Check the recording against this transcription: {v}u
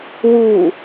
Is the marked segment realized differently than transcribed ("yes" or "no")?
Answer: yes